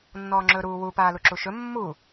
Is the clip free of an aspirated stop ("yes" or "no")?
yes